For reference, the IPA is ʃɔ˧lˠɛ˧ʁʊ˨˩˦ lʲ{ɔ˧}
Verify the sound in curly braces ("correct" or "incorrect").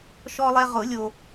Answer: incorrect